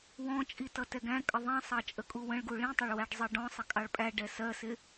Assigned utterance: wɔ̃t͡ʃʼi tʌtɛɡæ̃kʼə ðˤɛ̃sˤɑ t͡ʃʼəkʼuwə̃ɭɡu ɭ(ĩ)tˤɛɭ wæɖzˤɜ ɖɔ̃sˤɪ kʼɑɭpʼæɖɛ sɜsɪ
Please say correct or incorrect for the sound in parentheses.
correct